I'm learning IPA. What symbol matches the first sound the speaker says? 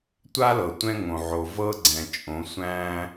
tʷ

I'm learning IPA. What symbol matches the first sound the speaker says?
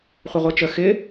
χʷ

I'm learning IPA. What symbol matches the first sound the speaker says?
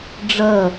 ɖ͡ʐ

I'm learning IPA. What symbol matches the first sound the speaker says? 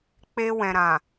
k͡p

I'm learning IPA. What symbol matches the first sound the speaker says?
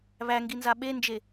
β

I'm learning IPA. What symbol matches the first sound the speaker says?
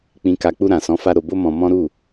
k͡p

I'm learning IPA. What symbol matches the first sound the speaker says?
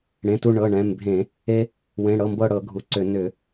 ɽ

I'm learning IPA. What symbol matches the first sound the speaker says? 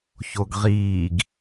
ç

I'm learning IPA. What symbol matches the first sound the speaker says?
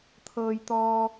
t̪ʰ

